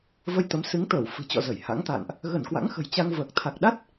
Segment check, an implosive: present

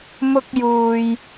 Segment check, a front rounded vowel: absent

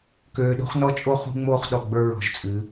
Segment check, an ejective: present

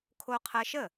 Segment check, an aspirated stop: present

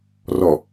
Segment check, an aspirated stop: absent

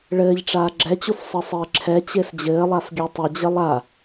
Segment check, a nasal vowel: absent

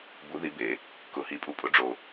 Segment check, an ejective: present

